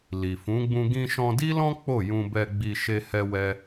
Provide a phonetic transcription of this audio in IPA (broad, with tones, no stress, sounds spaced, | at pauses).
l i˨ f ũ˨˦ ɡ͡b ũ˧ ɡ ĩ˧ ʃ ɔ̃˧ d i˦ l ɔ̃˦ k͡p o˦˨ j ũ˧ b ɛ˧ ɡ͡b i˧ ʃ e˦ h ɛ˦ w ɛ˦